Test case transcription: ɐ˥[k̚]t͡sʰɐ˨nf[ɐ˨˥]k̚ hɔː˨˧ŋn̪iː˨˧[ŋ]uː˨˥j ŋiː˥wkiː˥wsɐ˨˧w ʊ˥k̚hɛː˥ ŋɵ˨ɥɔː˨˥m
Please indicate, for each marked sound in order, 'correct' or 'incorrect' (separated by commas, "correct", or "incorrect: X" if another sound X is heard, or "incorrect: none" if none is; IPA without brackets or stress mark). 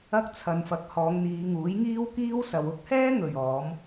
correct, correct, correct